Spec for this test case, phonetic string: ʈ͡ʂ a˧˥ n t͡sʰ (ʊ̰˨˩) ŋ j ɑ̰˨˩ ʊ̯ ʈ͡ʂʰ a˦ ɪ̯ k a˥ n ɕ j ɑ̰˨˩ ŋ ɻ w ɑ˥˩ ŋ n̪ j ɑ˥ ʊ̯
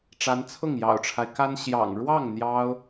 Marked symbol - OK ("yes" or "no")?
no